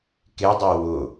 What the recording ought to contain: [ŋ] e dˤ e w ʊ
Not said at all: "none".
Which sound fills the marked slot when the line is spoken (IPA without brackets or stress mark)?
k